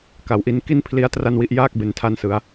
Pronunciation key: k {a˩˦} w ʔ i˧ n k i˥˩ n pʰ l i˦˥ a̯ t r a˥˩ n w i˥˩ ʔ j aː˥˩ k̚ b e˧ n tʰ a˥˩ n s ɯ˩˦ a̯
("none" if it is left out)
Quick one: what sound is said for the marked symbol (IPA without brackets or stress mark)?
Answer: a˩˦